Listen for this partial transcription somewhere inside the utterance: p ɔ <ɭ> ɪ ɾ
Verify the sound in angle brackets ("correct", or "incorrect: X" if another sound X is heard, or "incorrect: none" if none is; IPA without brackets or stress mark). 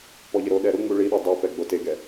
incorrect: ʎ